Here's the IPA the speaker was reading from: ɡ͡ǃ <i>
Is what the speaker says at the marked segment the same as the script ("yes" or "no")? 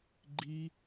yes